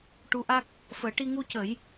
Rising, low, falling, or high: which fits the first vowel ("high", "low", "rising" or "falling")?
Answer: rising